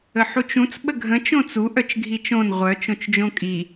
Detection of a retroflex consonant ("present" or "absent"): absent